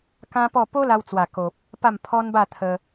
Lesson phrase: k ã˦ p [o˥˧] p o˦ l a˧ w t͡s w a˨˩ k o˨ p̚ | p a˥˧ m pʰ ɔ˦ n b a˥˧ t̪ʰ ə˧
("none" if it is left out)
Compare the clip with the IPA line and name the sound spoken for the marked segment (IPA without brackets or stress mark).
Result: ɔ˥˧